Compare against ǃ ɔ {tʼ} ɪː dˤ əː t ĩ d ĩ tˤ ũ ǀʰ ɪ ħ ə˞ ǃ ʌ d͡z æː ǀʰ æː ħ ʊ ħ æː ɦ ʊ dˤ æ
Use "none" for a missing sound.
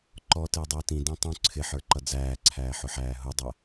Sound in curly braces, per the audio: t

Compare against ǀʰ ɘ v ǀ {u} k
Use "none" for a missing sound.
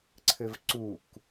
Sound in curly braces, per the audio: u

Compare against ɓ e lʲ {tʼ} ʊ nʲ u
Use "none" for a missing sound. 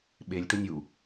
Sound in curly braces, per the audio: ʈ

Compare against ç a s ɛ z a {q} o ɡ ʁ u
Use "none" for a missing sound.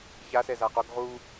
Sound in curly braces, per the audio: q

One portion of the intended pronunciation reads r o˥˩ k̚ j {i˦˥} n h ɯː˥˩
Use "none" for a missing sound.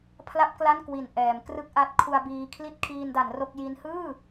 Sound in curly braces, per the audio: i˦˥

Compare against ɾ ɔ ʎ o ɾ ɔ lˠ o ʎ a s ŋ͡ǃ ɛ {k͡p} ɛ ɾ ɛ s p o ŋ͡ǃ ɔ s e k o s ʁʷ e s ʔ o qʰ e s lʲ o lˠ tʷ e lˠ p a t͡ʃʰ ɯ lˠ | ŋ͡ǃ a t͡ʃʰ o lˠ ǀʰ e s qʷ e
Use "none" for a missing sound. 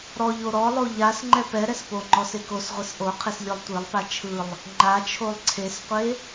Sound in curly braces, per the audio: p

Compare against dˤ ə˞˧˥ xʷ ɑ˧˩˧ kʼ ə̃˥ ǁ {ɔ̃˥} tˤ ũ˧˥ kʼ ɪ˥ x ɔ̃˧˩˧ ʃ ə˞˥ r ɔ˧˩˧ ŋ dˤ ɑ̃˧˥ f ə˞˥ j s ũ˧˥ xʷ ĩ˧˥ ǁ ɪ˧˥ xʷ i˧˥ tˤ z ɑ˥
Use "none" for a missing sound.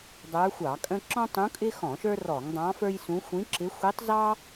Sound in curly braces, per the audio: ɔ̃˥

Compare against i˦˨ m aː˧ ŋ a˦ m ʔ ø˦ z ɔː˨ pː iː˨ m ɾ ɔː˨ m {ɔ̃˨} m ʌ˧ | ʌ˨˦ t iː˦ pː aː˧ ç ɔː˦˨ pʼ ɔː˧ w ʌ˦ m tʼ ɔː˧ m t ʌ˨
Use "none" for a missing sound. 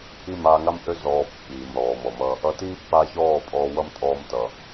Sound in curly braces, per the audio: ɔ˨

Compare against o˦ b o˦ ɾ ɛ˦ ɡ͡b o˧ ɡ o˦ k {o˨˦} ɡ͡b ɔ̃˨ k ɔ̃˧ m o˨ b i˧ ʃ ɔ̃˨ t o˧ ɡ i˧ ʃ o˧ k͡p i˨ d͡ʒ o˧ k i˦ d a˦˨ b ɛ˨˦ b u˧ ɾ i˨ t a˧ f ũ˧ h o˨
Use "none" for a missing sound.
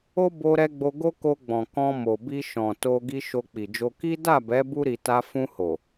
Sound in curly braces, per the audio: o˧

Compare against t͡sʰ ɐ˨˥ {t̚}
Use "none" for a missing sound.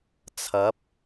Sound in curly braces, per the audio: p̚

